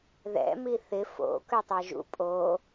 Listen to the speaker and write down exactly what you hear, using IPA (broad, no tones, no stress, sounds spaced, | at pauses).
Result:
ð ɛ̰ m i θ ɪ f o̰ k ø tˤ ɛ ʒ ṵ pʼ o